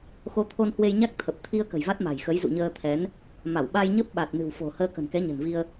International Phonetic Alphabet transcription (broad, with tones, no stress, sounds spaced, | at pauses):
x o˨˦ t̪ʰ o˧ n h w e˧ j ɲ a˦˥ k̚ t̪ʰ ə˨˩ p̚ t̪ʰ i˧ ə̯ k ə̤˨˩ j v a˦˥ t̚ m a̤˨˩ j x ə˨˦ j z ṵ˧˨ ɲ əː˧ t̪ʰ ɛ˨˦ n | m a˧˩ w ɓ a˧ j ɲ ə˦˥ p̚ ɓ a˨˩ t̚ n ɨ̤˨˩ w f o̤˨˩ h əː˧ k ə̤˨˩ n k ɛ˨˦ ɲ ə̤˨˩ n v i˧ ə̯